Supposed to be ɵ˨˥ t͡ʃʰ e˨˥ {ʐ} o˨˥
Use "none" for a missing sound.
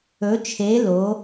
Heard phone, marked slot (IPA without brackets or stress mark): l